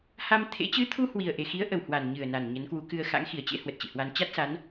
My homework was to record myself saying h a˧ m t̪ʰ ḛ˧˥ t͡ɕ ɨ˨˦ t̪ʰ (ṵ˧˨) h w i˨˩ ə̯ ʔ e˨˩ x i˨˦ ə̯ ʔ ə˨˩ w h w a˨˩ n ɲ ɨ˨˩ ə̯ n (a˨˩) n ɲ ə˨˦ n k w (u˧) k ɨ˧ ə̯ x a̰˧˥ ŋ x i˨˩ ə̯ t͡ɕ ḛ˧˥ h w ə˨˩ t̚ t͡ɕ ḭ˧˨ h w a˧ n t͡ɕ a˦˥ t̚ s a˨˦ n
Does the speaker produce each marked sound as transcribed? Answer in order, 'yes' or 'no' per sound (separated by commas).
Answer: no, yes, no